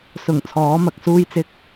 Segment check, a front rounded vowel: absent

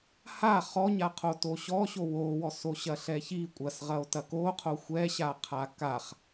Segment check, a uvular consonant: present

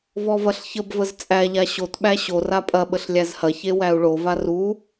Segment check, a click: absent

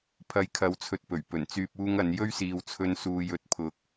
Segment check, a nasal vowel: absent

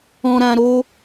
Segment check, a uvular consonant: absent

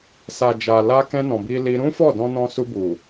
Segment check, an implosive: absent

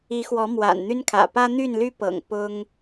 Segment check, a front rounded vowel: present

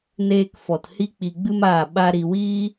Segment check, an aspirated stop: absent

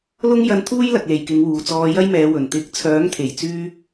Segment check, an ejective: absent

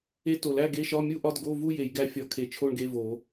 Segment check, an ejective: absent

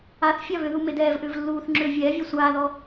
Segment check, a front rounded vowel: present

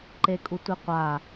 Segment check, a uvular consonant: present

